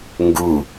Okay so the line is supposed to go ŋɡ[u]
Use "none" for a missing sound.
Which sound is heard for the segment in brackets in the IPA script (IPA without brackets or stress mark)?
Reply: u